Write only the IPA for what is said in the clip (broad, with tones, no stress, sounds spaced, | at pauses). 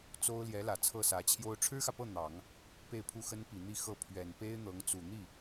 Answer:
t͡s o˥ ʊ̯ l j ɛ˧˥ l ä˨˩ t͡sʰ ɤ˥˩ s ä˧˥ t͡ɕʰ j o˥ ʊ̯ ʈ͡ʂʰ ɻ̩˥ x ä˨ p ɤ˥˩ n̪ ɑ˨˩˦ ŋ | p e˥˧ ɪ̯ pʰ u˥˩ x ə˥ n p i˨˩ n̪ i˥˧ x ɤ˥˩ pʰ ɥ ɛ˨˩ n p e˥ ɪ̯ n̪ ɤ˧˥ ŋ t͡s u˨˩ n̪ i˥˩